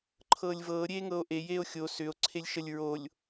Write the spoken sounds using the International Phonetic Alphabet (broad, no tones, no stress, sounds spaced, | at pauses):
ǃʰ ɤː lʲ v ɤː ɾʲ eː ŋ ɤ o̯ ʔ e j eː o̯ xʲ o s ʏ o̯ ǀʰ e lʲ ʃ ə lʲ ɹ o lʲ